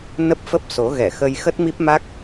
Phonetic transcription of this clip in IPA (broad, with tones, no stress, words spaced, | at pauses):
nə˦˥p̚fə˦˥p̚so˨˦ ɣɛ˧˩xə˧j xə˦˥t̚mi˦˥p̚ma˦˥k̚